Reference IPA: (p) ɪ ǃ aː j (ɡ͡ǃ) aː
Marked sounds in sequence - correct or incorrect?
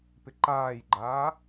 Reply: correct, correct

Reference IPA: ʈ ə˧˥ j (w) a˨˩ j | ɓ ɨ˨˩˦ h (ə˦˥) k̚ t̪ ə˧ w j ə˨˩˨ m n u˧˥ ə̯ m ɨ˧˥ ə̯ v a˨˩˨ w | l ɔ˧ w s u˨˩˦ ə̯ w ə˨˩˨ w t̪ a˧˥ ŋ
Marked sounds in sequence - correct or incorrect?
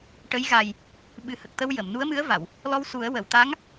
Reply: incorrect: ɣ, incorrect: ə˨˩

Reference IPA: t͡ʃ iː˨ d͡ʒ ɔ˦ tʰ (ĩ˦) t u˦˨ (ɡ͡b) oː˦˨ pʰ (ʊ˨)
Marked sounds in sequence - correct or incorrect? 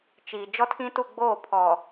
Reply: correct, correct, incorrect: ɔ˨

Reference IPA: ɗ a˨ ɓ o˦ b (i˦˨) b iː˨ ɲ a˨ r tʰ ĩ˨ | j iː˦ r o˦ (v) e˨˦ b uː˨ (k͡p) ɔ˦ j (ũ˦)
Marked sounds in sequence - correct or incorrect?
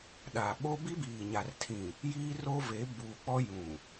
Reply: incorrect: i˦, correct, correct, incorrect: ũ˨

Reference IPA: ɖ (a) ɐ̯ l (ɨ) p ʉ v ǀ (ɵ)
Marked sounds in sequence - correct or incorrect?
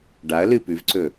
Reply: correct, correct, correct

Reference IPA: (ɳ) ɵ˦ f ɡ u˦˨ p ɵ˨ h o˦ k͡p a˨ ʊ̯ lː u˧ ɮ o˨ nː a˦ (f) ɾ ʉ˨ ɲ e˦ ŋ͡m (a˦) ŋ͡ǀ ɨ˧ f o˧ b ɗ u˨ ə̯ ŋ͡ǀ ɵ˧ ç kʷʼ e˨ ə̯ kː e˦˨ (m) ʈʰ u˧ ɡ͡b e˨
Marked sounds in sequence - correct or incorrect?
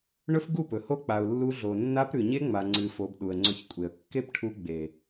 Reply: correct, incorrect: p, incorrect: a˨, incorrect: p

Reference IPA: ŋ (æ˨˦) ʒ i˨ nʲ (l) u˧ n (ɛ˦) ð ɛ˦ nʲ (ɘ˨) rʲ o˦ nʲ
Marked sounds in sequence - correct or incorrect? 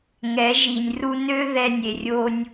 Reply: incorrect: ɛ˨˦, incorrect: r, incorrect: ø˦, incorrect: e˨

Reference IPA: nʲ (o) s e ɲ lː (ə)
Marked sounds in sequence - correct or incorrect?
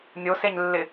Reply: correct, incorrect: ɪ

